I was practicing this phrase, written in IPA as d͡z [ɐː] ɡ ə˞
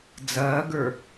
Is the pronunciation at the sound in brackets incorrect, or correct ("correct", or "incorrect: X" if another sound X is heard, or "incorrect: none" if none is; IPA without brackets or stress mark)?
correct